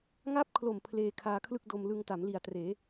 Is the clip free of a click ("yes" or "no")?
yes